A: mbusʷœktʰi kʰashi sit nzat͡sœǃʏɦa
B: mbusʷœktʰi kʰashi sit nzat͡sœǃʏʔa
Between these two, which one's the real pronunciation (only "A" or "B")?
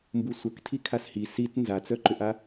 B